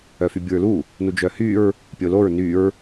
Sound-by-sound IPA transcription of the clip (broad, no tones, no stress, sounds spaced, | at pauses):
œ f y bʲ u ɹ l u | n u d͡ʒ œ h y ɹ | pʲ o l o ɹ n y ɹ